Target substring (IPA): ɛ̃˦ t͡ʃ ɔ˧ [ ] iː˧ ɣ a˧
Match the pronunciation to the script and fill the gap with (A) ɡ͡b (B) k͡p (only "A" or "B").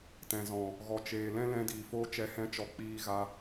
B